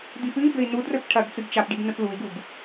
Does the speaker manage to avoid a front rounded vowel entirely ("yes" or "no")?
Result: yes